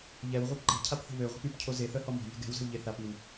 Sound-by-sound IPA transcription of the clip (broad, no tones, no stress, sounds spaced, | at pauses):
ʎ ɛ w ʁʷ œ p ǃ e̤ cʰ a p θ ə̤ β ø ʁʷ ɛ̤ p y p cʰ o z e θ œ h ɔ m ɔ̤ ʎ e̤ ɡ ɛ̤ w z ə̤ w ʎ e θ a p i w